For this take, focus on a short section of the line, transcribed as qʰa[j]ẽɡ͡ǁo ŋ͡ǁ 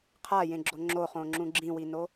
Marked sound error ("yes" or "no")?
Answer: no